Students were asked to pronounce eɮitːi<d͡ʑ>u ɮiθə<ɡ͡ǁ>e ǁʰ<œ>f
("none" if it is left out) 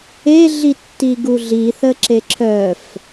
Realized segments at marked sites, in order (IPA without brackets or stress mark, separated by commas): ɡ, ǁ, œ